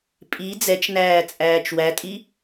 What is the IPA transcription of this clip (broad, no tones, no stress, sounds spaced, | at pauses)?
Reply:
pʼ i d͡z ɛ t͡ʃ n æː t͡sʼ æː t͡ʃ w æ tʼ i